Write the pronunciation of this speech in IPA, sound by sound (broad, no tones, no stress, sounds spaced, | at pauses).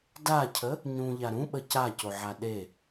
d a cʰ ə | ɲ ũ ʎ a ɾ ũ ɓ ə c a c o ʕ a ɗ e